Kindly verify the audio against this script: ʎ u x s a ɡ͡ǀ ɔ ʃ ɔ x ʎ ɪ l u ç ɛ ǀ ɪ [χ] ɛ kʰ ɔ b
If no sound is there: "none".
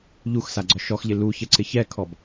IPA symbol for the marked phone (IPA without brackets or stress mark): ç